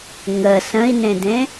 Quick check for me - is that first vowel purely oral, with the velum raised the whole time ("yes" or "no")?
yes